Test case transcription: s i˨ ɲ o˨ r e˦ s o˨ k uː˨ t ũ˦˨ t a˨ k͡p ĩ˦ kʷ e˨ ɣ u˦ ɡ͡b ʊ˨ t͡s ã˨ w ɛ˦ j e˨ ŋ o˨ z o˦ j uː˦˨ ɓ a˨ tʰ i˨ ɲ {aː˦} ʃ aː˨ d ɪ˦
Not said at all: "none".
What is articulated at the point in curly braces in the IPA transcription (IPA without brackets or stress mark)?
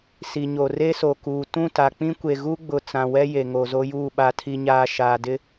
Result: aː˨